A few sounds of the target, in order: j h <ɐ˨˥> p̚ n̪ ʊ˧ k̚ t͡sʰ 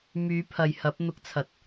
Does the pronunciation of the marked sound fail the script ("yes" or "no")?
no